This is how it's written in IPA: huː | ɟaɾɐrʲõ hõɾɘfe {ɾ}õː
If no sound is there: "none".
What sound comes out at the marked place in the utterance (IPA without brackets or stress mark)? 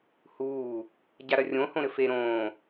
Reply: ɾ